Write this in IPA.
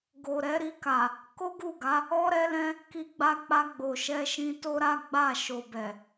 ɡ o˨ ɾ ɛ˨˦ ɾ i˧ k a˨ | k o˦ ɡ u˦˨ ɡ a˨˦ | ɔ˦ ɾ ɛ˦ l ɛ̃˦ | k i˧ ɡ͡b a˧ k͡p a˧ ɡ͡b o˨ ʃ ɛ˧ ʃ ĩ˧ t o˦ ɾ a˦ ɡ͡b a˦˨ ʃ o˨ b ɛ˨

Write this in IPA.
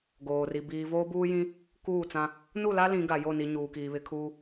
ɡ oː˨ r i˨ b iː˨ v oː˦ b uː˦ j ĩ˦ | k uː˦˨ t͡s ã˦ | n u˦˨ l a˦ l ĩ˨˦ ɡ a˨ j o˦˨ n i˨ ɲ uː˨ k iː˨ β ɪ˨˦ kʰ uː˦

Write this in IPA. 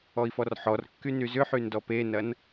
ɔ i̯ f ɔ r ħ ɔ r kː y n y z ʏ ħ y n d ɔ p e n ɐ n

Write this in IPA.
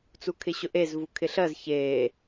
t͡s u kʰ ɪ ɕ ʊ ʔ e z v u kʰ ɪ ɬ ɜ z ç eː

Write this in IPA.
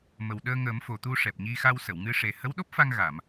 m ə˨˩ w ɗ əː˧ ŋ əː˨˩˦ m f o˨˩ t̪ u˧ ʂ ɛ˨˩ p̚ ɲ i˧ x a˧ w s ə˨˩˨ w ŋ ɨ˧ ʂ e˨˩ h ə˧˥ w ɗ o˦˥ p̚ f a˧ ŋ ɣ a˨˩˨ m

